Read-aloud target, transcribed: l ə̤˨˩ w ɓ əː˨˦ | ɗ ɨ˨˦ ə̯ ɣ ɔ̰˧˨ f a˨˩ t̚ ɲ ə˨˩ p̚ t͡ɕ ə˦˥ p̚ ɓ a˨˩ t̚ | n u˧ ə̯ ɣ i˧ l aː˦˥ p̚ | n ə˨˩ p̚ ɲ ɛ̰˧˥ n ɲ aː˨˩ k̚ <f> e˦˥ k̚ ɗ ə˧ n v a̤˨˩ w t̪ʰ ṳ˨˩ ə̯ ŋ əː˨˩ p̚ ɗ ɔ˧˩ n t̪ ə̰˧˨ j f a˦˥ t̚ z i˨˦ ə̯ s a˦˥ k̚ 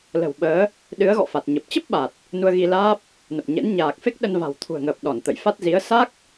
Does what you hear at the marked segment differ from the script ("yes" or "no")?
no